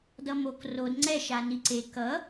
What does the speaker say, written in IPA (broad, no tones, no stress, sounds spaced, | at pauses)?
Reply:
d ʌ m o k r o d ŋ͡ǀ ɛ ʃ a n i ǀ e k ʌ